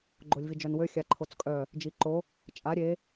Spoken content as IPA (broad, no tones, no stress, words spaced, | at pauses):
ɡ͡ǃolʲvid͡ʒœnwø xʲaǃʰot͡skʼœ | d͡ʒiǃo | t͡ʃʼa ɾʲe